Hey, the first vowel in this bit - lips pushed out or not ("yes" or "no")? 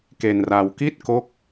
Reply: no